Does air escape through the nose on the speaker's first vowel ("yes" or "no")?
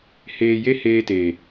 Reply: no